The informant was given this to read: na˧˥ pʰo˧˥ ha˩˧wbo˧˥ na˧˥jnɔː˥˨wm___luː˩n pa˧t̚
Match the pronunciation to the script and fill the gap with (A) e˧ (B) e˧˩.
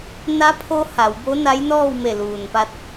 B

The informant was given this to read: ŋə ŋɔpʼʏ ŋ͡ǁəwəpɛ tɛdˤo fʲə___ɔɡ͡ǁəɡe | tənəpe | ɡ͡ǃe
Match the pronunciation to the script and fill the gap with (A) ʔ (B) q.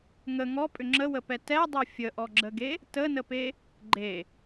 A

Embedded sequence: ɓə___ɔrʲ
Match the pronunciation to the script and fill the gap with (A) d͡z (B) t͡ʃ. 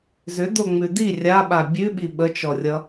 B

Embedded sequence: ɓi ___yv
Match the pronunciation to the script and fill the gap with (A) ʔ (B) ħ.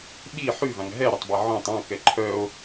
B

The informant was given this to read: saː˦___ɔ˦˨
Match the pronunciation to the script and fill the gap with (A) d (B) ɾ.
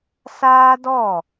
A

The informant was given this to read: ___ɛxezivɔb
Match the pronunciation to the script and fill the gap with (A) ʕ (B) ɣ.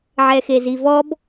A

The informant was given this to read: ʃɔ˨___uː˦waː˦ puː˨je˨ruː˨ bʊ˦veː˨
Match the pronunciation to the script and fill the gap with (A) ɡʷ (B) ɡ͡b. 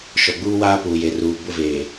B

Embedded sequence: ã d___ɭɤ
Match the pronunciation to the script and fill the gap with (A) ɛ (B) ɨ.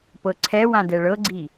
A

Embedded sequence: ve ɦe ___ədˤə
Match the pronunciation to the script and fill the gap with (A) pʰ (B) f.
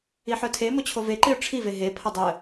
A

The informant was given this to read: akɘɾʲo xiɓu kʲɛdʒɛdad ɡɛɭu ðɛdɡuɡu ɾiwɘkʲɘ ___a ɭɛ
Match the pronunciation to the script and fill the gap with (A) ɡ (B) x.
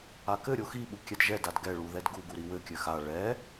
B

